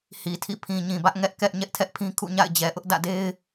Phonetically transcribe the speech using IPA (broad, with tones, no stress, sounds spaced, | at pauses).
h i˨ tʰ ḭ˦˨ pʰ ĩ˨ ɲ ĩ˨ b ä˦ ʔ ŋ ɛ˦ ʔ k ɛ˦ ʔ ɲ ɛ˦ ʔ tʰ ɛ˦ ʔ pʰ ĩ˦ kʰ ṵ˦˨ ɲ a̰˦˨ ɪ̯ d͡ʑ ɛ˨ ʔ ʊ˦ ʔ d ä̰˦˨ d e˦ ɪ̯